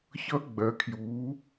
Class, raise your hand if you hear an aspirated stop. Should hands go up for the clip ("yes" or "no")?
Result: yes